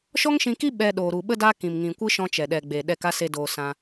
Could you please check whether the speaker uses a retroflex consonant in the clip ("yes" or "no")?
no